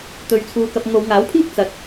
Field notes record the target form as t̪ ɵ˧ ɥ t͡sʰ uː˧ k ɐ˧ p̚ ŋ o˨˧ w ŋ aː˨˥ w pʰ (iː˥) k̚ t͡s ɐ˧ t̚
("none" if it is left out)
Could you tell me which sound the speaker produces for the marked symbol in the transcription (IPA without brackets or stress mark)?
iː˥